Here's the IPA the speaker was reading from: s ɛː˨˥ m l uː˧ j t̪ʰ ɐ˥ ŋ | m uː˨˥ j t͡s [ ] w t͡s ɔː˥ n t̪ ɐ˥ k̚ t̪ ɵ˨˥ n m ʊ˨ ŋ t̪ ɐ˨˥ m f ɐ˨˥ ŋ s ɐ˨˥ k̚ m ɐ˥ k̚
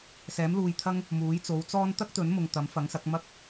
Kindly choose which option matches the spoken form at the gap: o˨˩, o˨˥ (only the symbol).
o˨˥